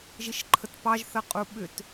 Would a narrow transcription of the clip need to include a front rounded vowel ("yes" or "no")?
yes